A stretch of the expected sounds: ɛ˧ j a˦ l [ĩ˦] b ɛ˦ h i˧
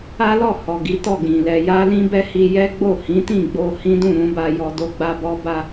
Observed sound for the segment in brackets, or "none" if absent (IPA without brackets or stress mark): ĩ˦